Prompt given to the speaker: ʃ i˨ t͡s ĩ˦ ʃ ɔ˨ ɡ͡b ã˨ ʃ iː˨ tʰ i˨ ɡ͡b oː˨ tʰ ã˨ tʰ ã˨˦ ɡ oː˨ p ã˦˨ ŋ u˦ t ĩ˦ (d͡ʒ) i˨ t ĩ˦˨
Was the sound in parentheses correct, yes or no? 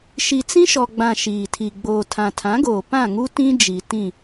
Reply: yes